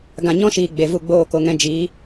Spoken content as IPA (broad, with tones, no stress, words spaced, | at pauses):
ɡã˨ɲɔ̃˦ʃiː˨ ɡ͡be˨vu˦˨ ɡ͡boː˦˨ko˧ŋɛ̃˧ d͡ʒiː˨˦